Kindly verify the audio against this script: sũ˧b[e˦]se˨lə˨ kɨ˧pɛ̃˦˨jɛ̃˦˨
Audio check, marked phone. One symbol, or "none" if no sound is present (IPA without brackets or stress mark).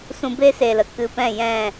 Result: e˦